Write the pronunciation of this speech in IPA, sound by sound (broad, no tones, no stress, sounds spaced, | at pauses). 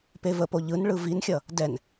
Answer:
p e v ə p o ʎ ɯ n ɭ ɯ v i n xʲ ʌ | d ɛ n